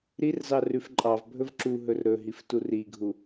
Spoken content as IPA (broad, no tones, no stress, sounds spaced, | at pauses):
ɾ i r z ɑ r ʉ f ǃʼ ɑ v bʱ ɵ v ǁ u ɦ ɵ r ɾ ɵ ɦ i f t u r i ɡʱ u